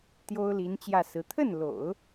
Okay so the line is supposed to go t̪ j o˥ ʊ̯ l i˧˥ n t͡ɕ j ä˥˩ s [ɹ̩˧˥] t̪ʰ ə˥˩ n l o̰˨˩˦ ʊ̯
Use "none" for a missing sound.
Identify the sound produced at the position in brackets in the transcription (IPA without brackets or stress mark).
ɹ̩˧˥